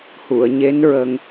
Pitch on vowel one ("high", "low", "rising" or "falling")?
low